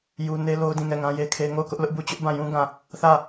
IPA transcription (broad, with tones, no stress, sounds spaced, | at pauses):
j u˦ n e˦ l o˦ ʊ̯ d ĩ˦˨ ŋ ɛ˦˨ ŋ ã˦ j e˦ kʰ e˦ ŋ o˦˨ ʊ̯ k ʊ˦ ʔ l ʊ˦ ʔ b u˦˨ t͡ɕ ʊ˦ ʔ b ã˦˨ j ũ˦ ɡ ã˦˨ | θ ä˦˨